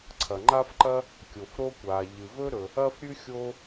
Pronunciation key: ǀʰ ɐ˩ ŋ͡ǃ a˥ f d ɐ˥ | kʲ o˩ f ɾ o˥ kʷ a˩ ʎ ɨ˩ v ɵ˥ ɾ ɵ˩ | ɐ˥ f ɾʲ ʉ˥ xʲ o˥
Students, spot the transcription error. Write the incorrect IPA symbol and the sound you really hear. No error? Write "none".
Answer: d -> ǃ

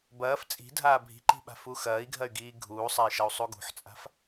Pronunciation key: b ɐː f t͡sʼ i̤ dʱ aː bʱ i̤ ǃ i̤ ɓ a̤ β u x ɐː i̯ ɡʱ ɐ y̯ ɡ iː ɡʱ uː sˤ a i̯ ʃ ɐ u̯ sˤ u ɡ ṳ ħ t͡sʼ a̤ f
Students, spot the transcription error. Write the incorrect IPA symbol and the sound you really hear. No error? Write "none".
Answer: β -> f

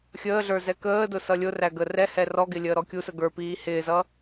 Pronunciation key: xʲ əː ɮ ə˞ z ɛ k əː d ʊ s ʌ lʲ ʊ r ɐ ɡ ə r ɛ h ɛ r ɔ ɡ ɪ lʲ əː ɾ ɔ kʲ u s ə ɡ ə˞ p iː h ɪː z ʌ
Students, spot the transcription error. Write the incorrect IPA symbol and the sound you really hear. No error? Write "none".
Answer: ɐ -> æ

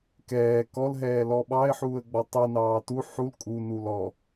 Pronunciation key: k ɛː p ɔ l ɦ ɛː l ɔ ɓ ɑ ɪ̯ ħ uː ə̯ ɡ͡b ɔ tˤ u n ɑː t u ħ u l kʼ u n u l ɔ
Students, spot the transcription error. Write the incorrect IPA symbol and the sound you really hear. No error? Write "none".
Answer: p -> k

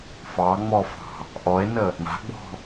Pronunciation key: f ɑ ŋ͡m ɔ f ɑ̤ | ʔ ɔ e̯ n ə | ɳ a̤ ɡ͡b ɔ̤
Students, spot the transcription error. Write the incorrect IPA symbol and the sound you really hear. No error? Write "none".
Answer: none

